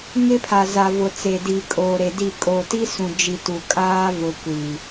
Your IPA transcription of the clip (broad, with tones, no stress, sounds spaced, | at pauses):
ŋ ɪ˦ pʰ a˨ z a˨ v ʊ˨ t͡s e˨ d i˨ kʼ oː˨ ɾ e˨ d i˦˨ kʼ o˨ t i˦ s ũ˨ d͡ʒ i˨ t u˨ kʼ aː˦ v ʊ˨ kʷ i˨